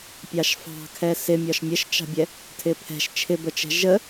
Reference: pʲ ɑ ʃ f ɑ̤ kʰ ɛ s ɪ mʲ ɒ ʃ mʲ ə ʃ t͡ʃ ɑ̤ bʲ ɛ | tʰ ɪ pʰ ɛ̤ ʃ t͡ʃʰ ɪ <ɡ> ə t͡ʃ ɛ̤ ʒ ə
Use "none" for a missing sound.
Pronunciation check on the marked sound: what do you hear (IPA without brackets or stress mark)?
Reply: b